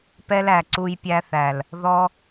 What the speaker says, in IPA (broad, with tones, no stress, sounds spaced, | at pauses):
p ɛ˦ l æ˨ ǀ u˧ j pʲ æ˧ θ æ˨ l | ð ɔ˦